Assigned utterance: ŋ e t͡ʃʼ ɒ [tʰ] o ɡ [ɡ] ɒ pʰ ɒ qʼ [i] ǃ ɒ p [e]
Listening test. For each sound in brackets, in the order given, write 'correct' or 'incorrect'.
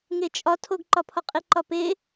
correct, incorrect, correct, correct

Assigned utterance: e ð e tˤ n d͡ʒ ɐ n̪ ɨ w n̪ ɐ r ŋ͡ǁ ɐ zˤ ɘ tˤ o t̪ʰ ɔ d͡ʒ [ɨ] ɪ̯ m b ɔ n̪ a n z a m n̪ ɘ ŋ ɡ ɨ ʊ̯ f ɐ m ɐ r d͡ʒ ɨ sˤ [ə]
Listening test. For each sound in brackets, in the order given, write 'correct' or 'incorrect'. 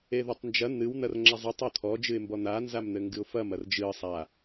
correct, incorrect

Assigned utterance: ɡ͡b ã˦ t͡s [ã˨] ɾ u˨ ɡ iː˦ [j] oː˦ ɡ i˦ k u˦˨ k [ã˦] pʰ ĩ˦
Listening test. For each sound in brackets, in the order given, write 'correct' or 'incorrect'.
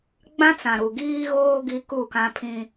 correct, incorrect, correct

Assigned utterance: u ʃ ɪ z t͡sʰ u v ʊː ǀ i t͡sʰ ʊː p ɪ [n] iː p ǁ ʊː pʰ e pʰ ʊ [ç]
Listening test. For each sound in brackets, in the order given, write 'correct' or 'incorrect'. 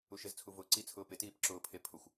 incorrect, incorrect

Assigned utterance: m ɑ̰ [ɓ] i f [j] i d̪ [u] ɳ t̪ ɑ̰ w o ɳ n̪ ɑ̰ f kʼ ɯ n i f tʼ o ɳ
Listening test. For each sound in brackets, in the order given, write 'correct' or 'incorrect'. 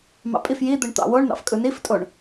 incorrect, correct, incorrect

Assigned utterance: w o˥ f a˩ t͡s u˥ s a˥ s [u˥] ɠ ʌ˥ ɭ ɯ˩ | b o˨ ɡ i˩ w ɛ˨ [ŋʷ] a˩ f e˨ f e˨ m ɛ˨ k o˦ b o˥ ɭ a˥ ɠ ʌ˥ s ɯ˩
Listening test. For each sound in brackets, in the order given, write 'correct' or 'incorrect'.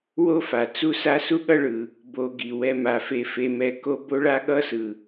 correct, incorrect

